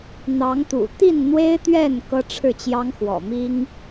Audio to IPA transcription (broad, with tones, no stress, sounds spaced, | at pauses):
n̪ ɑ˨˦ ŋ t̪ ṵ˨˩ t̪ i˥˨ n n̪ w e˦ ɪ̯ t̪ ɥ ɛ˥˨ n k ɤ˦ ʈ͡ʂʰ ɻ̩˥˨ t͡ɕ j ɑ˦ ŋ x w ɔ̰˨˩ m i˦ ŋ